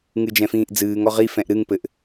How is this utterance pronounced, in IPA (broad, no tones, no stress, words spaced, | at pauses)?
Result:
ŋɨd͡ʒɛ̃fĩːʔd͡zɨːŋ ɔʁi fɛ̃ʔɾɨŋ pɘʔ